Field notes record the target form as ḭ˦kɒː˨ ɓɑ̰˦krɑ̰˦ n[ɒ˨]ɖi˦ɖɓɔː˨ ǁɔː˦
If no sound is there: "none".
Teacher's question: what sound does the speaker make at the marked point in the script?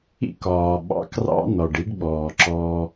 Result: ɒ˨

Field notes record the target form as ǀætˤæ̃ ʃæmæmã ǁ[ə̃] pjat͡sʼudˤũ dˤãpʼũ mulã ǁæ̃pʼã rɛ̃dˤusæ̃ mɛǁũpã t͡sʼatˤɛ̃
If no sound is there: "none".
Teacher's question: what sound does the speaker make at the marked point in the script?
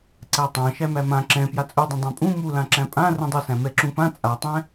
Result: ɛ̃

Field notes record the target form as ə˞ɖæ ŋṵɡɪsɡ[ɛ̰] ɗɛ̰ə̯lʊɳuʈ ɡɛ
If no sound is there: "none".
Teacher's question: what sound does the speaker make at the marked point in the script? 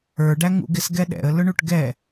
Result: ɛ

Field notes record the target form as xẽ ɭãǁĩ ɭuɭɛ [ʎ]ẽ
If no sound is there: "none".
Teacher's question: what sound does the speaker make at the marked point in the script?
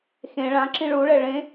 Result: ɭ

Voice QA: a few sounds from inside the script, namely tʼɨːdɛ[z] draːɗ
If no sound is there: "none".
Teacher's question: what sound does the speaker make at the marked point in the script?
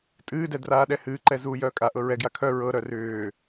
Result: none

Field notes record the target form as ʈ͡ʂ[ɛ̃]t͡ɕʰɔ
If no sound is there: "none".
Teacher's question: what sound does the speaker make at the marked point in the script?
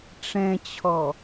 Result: ɛ̃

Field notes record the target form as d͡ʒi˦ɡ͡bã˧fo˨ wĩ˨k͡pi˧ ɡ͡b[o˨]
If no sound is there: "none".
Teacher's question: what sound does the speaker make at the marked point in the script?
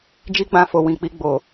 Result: o˨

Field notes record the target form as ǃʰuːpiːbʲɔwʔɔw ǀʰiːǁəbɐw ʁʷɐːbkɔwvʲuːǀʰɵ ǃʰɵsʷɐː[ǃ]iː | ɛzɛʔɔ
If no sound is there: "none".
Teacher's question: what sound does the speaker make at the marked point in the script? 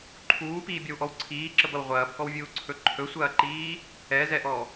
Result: ǃ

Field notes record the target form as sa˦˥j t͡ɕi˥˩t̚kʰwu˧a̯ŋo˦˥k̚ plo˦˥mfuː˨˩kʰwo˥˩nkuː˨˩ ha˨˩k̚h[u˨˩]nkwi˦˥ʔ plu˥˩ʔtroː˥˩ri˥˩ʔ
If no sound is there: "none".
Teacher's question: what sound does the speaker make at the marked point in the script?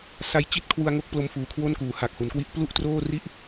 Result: u˩˦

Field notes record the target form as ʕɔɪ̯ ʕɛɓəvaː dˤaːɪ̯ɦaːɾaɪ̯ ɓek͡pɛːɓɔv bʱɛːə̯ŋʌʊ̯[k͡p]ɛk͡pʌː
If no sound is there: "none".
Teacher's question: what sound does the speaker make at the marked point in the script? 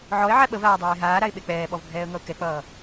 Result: k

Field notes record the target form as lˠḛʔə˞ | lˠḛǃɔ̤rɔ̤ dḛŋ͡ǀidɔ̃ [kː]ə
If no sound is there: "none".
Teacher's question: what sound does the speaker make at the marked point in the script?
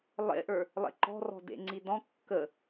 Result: kː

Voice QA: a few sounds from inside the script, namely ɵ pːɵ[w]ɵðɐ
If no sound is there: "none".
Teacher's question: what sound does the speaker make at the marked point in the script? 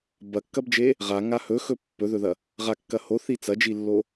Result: ð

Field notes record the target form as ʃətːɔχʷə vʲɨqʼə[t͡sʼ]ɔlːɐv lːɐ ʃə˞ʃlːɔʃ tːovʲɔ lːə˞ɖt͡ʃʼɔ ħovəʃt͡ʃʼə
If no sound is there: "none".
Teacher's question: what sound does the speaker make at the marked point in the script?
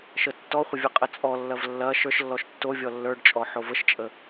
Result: t͡sʼ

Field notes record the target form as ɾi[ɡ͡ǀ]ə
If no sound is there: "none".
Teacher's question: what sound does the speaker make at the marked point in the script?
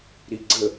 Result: ɡ͡ǀ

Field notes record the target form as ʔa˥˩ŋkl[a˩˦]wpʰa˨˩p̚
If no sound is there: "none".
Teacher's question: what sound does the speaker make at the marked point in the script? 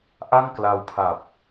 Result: a˧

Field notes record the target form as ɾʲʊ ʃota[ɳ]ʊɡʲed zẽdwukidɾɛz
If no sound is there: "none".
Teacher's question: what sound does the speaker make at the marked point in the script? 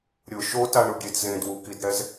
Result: ɳ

